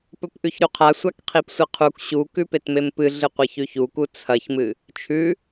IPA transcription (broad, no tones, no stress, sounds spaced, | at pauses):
p ɵ p ʔ ʉ ç ɾ u qʰ a sʷ a k qʰ i p sʷ ɨ qʰ u k ɕ u k ʉ p e t m e m p ɨ ɮ ɨ qʷ ɐ ç ʉ ç u k u t͡sʰ ɐ ç m ɨ | t͡ʃʰ ʉ